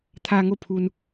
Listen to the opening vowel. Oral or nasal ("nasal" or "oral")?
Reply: oral